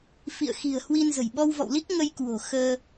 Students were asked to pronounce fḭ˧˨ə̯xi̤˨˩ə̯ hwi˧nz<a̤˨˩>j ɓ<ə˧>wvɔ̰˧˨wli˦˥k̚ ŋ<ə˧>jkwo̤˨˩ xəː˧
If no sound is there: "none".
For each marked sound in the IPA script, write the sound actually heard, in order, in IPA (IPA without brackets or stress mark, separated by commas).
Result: ə̤˨˩, ɔ˧, ə˧